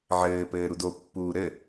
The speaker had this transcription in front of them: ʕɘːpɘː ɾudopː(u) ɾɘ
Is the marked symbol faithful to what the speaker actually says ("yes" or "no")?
no